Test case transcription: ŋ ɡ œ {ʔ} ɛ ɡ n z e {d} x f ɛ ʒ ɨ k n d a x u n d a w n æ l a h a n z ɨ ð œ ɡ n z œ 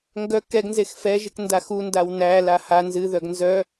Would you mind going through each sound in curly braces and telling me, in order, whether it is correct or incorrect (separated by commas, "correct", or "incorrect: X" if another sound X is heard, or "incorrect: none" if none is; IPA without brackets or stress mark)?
incorrect: k, incorrect: none